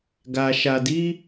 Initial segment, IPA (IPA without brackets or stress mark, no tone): ɡ